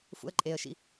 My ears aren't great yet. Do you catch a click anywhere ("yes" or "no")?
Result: yes